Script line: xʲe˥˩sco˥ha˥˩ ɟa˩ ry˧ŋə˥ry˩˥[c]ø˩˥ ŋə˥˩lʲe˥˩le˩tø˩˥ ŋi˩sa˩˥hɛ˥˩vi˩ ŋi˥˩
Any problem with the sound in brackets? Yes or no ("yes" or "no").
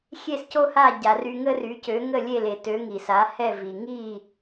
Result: no